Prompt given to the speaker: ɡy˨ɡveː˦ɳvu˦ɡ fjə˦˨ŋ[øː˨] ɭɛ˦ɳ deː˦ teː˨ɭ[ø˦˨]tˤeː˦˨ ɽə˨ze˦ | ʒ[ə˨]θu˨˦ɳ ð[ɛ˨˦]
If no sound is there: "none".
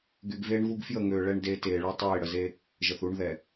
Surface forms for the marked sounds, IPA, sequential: øː˨, ø˦, ə˨, ɛ˨

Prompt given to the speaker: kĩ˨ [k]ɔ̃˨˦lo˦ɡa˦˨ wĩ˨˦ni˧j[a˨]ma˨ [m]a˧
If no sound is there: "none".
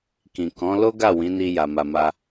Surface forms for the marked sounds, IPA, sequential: k, a˨, m

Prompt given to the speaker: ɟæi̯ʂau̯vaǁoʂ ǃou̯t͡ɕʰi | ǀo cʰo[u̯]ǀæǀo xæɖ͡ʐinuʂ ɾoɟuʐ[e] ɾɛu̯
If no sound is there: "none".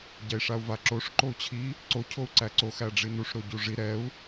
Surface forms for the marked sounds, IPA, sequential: u̯, i

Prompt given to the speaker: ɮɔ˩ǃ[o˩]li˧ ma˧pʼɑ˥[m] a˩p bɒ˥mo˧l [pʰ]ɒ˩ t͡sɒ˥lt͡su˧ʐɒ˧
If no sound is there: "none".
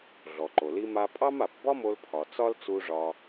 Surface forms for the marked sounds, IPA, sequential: o˩, m, pʰ

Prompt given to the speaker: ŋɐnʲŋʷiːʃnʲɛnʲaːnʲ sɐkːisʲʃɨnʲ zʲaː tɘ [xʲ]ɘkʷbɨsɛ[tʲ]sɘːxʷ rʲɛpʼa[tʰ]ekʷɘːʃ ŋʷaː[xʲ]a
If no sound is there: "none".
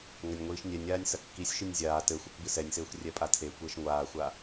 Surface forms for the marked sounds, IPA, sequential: xʷ, nʲ, tʰ, xʷ

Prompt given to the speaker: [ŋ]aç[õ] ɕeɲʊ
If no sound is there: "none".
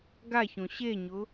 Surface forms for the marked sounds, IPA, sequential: ɡ, õ

